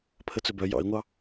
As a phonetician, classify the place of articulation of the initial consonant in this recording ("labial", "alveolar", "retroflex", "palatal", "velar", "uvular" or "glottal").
labial